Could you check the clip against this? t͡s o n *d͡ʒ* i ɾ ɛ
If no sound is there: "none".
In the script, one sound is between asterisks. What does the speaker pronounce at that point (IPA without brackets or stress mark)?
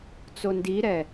d